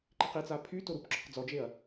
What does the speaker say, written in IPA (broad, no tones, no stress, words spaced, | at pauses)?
ǃiqit͡sa pʰy toɾupǁɔq d͡zɔd͡ʒeɐ̯